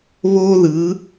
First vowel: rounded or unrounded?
rounded